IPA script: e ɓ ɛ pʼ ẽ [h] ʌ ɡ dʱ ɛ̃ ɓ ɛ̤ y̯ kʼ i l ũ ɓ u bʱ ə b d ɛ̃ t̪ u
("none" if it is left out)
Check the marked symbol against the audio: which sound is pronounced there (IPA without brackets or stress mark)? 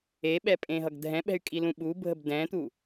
ɦ